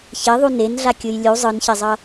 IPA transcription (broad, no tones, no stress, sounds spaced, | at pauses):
ç e ðˤ u n e n ɮ a kʲ ɯ j lʲ u zˤ ɯ n ç e zˤ ʌ